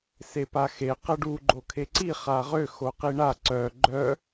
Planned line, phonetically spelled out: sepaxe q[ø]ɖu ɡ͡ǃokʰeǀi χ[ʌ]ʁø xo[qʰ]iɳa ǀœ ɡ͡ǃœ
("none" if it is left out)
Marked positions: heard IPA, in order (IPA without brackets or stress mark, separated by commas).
ə, a, q